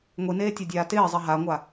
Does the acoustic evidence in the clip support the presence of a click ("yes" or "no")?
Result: no